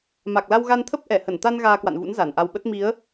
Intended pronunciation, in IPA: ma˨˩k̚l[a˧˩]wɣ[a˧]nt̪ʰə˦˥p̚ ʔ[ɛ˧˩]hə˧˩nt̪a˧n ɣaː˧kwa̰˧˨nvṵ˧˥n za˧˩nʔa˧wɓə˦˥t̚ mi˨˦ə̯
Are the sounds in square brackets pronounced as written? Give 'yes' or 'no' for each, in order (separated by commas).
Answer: no, yes, yes